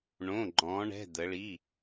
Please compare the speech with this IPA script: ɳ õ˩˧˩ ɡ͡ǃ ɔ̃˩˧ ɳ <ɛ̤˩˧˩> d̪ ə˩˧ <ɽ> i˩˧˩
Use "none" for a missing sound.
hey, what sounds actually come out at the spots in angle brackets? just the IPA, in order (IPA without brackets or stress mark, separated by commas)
ɛ̤˩˧˩, ɭ